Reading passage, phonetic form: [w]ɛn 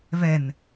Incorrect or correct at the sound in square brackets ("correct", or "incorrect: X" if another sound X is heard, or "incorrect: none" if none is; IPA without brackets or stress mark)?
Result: incorrect: v